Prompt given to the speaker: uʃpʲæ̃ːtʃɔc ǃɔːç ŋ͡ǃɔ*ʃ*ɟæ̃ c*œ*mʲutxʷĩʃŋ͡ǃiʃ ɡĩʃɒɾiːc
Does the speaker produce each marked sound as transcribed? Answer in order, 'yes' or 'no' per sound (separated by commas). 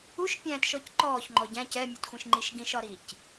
no, no